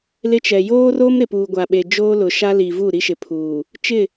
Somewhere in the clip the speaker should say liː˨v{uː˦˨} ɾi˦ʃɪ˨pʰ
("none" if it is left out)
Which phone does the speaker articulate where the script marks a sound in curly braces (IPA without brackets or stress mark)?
uː˦˨